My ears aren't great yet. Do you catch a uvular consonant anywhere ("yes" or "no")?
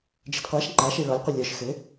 yes